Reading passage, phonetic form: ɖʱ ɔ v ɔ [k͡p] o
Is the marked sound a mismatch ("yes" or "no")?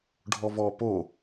yes